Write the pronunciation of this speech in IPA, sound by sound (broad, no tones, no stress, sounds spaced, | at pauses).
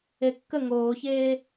e kː ə ŋ oː ç eː